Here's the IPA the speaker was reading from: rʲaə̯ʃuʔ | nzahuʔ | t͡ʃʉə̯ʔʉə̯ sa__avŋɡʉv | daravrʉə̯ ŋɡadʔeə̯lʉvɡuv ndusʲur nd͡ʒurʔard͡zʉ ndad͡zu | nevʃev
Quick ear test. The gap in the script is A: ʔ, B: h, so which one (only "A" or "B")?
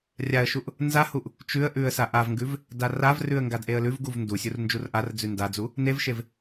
A